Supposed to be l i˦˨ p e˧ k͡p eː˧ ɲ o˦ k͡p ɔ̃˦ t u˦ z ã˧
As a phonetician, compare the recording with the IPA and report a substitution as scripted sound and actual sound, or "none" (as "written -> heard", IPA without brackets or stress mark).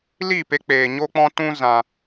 u˦ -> ũ˦